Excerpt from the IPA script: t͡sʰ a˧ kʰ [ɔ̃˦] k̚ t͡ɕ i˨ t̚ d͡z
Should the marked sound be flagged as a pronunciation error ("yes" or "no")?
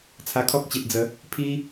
yes